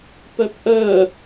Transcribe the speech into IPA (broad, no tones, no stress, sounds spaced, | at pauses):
p œ p ʔ œ